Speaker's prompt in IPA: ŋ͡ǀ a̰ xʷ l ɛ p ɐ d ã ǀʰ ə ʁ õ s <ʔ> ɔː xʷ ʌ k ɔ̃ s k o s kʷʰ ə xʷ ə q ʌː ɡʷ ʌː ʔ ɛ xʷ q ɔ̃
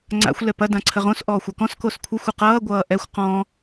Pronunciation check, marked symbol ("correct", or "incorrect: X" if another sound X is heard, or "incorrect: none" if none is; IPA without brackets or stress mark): correct